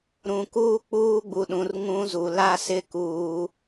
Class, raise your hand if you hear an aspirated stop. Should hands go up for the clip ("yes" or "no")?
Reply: no